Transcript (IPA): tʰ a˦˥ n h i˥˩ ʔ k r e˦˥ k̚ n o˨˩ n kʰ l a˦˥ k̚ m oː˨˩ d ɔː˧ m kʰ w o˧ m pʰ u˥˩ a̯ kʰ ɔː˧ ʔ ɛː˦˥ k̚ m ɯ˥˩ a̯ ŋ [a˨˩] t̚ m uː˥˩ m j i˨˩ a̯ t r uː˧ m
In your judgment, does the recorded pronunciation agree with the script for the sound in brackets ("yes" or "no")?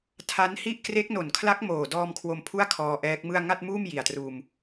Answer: no